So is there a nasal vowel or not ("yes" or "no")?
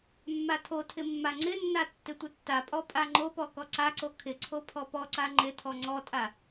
no